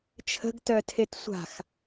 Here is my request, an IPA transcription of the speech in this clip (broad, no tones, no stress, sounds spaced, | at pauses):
t͡ʃʰ ə̤ ɡ t œ tʰ e t sʷ a̤ x